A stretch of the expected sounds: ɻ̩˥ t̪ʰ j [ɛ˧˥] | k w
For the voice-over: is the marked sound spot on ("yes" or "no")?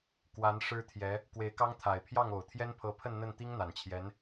yes